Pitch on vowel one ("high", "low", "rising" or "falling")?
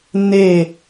low